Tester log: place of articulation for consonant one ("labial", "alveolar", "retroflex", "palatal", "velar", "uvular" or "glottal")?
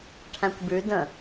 retroflex